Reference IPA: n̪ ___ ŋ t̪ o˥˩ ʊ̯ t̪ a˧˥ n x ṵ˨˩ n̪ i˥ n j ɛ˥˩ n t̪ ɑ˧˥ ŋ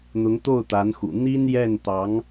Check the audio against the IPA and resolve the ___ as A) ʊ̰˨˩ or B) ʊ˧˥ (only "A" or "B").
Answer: B